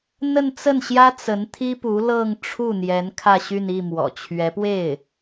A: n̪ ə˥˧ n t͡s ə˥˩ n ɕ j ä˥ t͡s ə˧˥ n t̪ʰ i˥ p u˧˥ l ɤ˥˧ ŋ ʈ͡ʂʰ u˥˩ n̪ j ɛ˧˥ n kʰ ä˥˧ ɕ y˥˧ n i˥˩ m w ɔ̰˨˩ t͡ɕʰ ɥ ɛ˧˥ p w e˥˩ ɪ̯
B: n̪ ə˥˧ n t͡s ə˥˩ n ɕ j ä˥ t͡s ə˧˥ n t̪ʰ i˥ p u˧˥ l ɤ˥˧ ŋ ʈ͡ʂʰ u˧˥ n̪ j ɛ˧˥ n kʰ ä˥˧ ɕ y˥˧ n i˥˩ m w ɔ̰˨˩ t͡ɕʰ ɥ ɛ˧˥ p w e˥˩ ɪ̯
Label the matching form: A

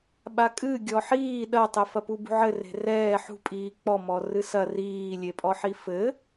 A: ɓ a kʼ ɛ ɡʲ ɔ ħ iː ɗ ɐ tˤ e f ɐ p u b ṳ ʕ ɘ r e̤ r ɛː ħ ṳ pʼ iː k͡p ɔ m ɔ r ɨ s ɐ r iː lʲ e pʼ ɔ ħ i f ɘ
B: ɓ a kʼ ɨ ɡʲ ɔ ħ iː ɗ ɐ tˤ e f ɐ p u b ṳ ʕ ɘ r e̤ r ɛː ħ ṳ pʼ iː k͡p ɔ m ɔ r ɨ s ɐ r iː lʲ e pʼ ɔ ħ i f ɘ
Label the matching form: B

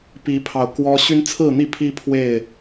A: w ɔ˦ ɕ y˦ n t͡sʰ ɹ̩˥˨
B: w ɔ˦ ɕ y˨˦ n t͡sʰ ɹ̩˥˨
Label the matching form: A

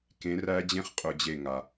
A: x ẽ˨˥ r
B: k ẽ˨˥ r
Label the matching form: B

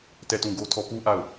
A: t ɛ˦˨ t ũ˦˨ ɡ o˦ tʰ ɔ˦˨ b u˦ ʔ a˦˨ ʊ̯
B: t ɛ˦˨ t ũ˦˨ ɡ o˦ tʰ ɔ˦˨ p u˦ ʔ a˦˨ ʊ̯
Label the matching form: B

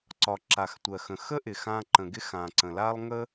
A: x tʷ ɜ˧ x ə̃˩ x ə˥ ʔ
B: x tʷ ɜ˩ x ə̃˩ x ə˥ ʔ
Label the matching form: B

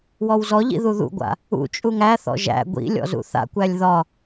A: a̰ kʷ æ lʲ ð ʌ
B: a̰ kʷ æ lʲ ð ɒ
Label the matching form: B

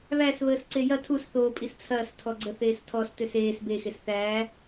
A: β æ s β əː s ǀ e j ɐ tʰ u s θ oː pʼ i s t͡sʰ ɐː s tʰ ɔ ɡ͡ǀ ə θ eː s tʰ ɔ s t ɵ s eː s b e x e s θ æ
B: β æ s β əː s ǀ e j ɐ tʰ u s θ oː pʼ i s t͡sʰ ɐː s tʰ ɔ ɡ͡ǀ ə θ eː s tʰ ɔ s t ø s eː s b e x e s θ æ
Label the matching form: B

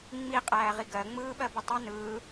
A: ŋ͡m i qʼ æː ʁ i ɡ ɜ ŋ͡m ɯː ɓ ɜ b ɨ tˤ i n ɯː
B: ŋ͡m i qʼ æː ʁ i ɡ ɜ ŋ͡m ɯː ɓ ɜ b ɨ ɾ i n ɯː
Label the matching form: A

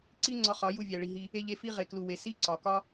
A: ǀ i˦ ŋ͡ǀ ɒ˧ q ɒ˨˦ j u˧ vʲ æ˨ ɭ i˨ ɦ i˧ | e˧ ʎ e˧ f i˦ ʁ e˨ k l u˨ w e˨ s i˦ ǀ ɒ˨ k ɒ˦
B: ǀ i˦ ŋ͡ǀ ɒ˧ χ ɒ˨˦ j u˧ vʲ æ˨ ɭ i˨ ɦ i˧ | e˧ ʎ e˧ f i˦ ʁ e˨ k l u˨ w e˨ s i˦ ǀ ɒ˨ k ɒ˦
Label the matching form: B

